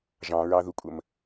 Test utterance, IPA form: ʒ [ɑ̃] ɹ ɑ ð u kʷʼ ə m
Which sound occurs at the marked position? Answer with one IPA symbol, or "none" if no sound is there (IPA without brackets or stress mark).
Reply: ɑ̃